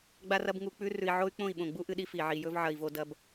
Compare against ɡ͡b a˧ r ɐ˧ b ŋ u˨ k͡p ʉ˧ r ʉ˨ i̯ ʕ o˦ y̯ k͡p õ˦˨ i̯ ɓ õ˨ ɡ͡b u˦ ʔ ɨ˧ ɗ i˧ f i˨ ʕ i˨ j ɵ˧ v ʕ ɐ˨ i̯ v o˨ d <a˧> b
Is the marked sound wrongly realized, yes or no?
yes